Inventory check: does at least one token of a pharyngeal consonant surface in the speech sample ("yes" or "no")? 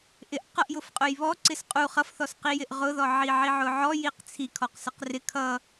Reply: yes